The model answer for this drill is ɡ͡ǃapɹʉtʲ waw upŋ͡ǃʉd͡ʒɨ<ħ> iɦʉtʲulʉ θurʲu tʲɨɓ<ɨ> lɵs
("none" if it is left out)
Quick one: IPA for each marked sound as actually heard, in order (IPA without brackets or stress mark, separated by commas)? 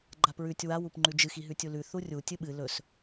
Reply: x, ɨ